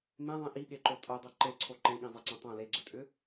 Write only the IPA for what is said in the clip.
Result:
m ẽ ðˤ ĩ ʔ i ɠ e ǃ o tʼ o dˤ ɵ ǃ e ǀʰ o ǃ ẽ ɠ ĩ zˤ e ǀ õ tˤ õ l e ɡ͡ǀ ɵ tʼ ʏ

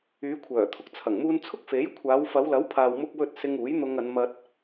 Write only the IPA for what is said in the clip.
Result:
yː˨˧ kʷʰ œː˨˩ t̪ʰ ʊ˧ k̚ t͡sʰ ɐ˨˩ ŋ m uː˧ n t͡sʰ ʊ˥ k̚ f e˨˥ j kʷʰ aː˨˧ w f ɐ˨˧ w l ɐ˨˥ w pʰ aː˨ w m ʊ˧ k̚ w ɵ˧ t̚ s ɪ˧ ŋ uː˨˥ j n̪ ʊ˧ ŋ ɐ˨˧ n m ɐ˧ t̚

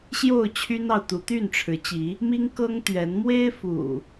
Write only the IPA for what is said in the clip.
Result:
ɕ j o˥˨ ʊ̯ t͡ɕʰ y˦ n ɑ˨ ʊ̯ t̪ u˨˦ t̪ y˥˨ n ʈ͡ʂʰ ɻ̩˨˦ t͡ɕ i˨˦ | m i˦ ŋ k ɤ˦ ŋ t̪ ɥ ɛ˨˦ n m w e˦ ɪ̯ f ṵ˨˩

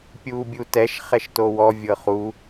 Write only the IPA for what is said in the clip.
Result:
pʲ uː bʲ u t ɛ ʃ χ ɛ ʃ t o w ɔ vʲ ɤ χ uː

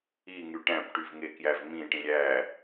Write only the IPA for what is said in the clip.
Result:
i ŋ y ʈ æ̃ p ʈ y v ŋ e k j æ v m ĩ ʈ ĩ ɾʲ æ

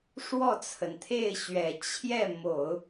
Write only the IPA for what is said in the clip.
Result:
ʂ w ɔ˥˩ t͡sʰ ə˩ n t̪ʰ e˥˩ ɪ̯ ɕ ɥ ɛ˨˩ t͡ɕʰ j ɛ˥˩ m o˨˩˦ ʊ̯

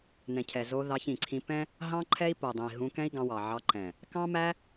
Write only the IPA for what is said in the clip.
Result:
n ɛ̃˨ cʰ ɛ˨ z o˧ ð ɑ˧ ç ĩ˨ ǀʰ ĩ˧ p ɛ̃˦ | ɦ ɑ̃˦ ǃʰ ɛ˦ i̯ p o˨ dˤ ẽ˨ i̯ ɦ ũ˧ k ɛ̃˦ i̯ ɡ ɑ̃˧ w ɑ˨ ʕ ɑ˧ ǃ ɛ̃˨ | k ɑ̃˦ m æ˦

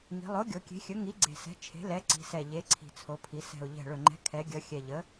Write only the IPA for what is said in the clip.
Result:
ŋ i̤˩˧ lˠ o˩˥ ɡʲ o˩˧ kʲ e̤˩˥ xʲ ɵ˩˥ ŋ i˩˥ ɡ͡ǀ e̤˨˩ s ɛ̤˩˥ t͡ʃʰ e̤˩˥ l ɛ˩˥ ǀ i̤˩˧ s ɛ˨˩ ʎ e˩˥ ǀʰ i̤˨˩ t͡sʰ o˩˧ pʰ i˩˧ s ɛ̤˨˩ ʊ̯ ʎ ɛ̤˨˩ ɭ ɵ˨˩ ŋ͡ǃ ɛ̤˩˥ kʰ ɛ˩˧ ɡʲ ʌ˩˧ xʲ ɛ˨˩ ʎ ə˩˥

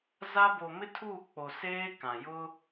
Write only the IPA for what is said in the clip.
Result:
z a˦ b o˨ m ɪ˦ tʰ uː˦˨ k͡p o˨ s eː˦ k ã˨ j ʊ˦

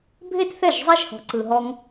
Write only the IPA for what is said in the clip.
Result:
bʱ e˦ t θ ɛ˦˨ ʒ zˤ ɛ˦ ʒ h ɔ̤˧ ǀ ɯ˧ ɦ ɔ˦ ŋ

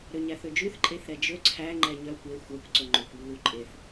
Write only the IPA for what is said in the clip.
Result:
ɾ ø ɲ æ θ ø d͡ʒ ʉ θ ǃʼ e θ ɾ ɛ d͡ʒ ɵ ǀʰ æ ŋ͡ǃ ɛ ɲ œ kʷ e xʷ ɛ kʷ ǀ ɵ ŋ͡ǃ ø kʷ lː u ǃʼ e θ

